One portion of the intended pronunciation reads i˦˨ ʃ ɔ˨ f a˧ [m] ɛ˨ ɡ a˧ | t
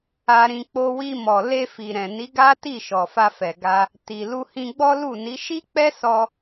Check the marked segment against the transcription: incorrect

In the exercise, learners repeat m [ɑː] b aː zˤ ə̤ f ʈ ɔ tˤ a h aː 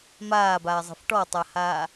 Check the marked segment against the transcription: incorrect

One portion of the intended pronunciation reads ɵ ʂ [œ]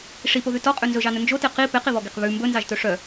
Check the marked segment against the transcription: correct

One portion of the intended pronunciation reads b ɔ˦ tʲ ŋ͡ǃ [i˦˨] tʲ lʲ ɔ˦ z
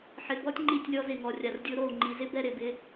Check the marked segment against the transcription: correct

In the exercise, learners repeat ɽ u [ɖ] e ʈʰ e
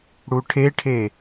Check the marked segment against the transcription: incorrect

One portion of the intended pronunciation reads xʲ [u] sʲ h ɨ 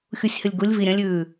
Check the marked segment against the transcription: correct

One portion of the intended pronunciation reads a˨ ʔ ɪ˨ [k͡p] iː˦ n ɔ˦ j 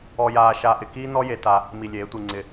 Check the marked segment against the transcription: incorrect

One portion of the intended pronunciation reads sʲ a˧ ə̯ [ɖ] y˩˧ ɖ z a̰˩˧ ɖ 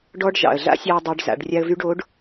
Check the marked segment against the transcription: incorrect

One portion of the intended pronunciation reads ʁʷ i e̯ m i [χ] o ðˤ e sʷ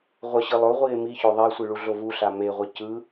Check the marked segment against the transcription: incorrect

